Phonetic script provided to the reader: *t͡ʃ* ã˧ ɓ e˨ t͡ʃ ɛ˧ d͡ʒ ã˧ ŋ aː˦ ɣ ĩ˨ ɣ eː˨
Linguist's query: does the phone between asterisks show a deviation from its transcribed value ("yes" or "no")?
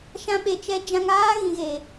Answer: yes